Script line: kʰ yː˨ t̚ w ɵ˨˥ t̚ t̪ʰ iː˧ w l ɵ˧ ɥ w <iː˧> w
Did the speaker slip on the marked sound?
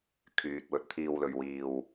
no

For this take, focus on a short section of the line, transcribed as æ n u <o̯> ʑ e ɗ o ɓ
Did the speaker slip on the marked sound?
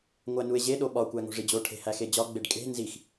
yes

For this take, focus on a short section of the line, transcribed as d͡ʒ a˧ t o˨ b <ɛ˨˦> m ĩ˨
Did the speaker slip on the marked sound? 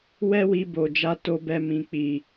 yes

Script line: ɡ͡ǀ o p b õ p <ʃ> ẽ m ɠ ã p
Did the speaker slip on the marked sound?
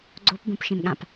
no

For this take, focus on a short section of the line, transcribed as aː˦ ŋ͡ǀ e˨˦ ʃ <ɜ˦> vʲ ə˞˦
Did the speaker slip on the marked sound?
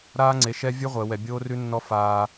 yes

